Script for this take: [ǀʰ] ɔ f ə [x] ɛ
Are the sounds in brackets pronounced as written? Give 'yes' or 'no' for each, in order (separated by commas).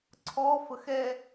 yes, yes